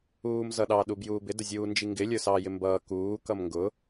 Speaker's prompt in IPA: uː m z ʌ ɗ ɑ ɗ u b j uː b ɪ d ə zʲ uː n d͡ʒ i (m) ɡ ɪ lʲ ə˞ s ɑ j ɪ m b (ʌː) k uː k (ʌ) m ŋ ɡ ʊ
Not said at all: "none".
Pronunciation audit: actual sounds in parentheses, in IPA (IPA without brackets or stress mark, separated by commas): ŋ, ʌː, ʌ